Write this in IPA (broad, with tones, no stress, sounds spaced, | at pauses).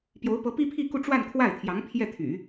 p j o˧˥ ʊ̯ p ɤ˧˥ p i˥ pʰ i˥˧ k u˥˧ ʈ͡ʂ w a˥˧ n kʰ w a˥˩ ɪ̯ t̪ʰ j ɑ˧˥ ŋ pʰ j ɛ˥˩ t̪ʰ y̰˨˩˦